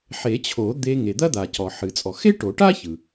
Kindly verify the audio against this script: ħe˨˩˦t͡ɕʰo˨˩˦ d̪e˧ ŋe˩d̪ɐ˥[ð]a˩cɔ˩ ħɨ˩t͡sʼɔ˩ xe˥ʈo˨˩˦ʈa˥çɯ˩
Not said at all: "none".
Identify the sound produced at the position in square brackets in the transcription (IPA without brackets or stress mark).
d̪